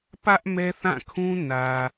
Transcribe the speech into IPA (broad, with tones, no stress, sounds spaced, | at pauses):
p ä˦ ʔ m ɛ˦ θ ã˦˨ kʰ ũ˦ n ä˨